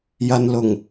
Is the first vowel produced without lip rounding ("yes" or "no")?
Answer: yes